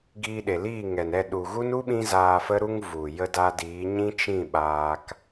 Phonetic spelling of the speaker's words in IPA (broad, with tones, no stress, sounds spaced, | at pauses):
ɡ iː˧ ɗ e˨ l iː˦˨ ŋ ɛ˨ n ɛ˦˨ ɗ u˨ ɣ u˦ n u˦ ɓ ĩ˦ z aː˧ f ə˦ ɾ u˦ ŋ v u˨ j ə˧ d a˧ d iː˨˦ ɲ ĩ˦ t͡ʃ ĩ˦˨ ɓ aː˧ k